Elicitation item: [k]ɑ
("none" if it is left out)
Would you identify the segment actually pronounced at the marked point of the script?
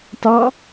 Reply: t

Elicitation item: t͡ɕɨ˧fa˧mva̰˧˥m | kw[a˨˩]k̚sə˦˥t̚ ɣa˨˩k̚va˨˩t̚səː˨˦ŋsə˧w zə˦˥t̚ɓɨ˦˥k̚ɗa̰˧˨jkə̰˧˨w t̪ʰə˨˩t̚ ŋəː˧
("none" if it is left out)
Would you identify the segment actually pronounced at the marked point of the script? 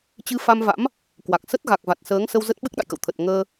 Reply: a˨˩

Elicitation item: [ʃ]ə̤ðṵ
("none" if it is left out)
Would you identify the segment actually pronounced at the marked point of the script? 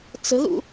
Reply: t͡s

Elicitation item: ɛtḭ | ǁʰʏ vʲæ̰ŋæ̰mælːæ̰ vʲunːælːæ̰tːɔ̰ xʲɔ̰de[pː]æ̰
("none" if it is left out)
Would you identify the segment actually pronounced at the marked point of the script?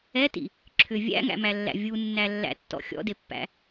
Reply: pː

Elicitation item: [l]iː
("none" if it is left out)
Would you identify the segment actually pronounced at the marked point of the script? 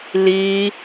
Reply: l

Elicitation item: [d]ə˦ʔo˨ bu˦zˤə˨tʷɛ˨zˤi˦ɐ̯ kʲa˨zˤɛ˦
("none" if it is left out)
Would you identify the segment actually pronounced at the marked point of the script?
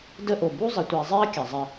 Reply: d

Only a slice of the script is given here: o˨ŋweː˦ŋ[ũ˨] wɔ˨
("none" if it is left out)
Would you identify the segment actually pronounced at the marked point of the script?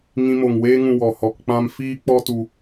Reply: ũ˧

